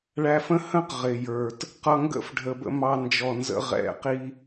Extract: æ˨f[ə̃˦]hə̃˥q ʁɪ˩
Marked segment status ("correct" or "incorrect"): correct